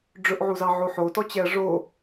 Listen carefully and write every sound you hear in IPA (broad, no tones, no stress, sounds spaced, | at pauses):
ɖ͡ʐ ɵ ʔ ʕ u z ɑ ʕ o ħ o t ɔ t͡ɕ ɛ ɐ̯ ʐ o